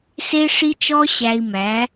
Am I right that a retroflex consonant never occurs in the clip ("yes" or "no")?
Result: no